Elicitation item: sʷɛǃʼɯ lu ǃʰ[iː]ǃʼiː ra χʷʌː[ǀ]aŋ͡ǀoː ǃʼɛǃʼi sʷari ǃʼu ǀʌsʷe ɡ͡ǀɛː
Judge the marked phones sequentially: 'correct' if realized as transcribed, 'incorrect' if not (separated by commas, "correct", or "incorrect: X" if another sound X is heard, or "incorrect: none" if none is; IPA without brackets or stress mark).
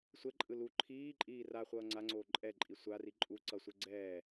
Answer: correct, incorrect: ŋ͡ǀ